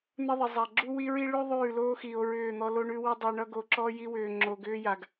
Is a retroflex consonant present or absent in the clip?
present